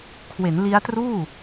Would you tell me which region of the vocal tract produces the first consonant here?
velum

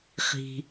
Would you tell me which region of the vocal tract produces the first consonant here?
uvula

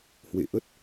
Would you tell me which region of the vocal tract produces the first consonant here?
throat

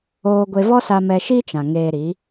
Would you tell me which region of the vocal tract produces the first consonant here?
velum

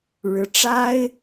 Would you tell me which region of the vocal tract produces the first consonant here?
retroflex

